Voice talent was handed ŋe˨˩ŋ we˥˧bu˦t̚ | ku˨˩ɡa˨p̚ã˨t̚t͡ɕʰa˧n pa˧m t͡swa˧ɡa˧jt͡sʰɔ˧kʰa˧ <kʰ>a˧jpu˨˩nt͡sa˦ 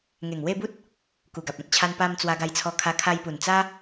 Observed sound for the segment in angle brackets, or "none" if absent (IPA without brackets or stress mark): kʰ